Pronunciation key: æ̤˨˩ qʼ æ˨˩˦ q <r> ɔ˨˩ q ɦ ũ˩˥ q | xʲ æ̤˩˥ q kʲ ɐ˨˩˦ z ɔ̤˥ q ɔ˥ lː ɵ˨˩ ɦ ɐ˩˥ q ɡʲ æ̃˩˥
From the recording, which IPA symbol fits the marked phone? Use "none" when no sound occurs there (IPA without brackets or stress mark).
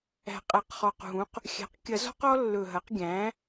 χ